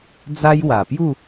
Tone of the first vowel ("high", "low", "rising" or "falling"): high